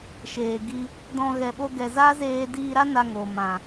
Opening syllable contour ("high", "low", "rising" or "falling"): low